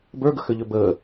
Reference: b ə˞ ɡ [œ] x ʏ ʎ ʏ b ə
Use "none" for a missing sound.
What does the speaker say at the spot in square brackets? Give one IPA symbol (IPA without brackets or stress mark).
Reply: ə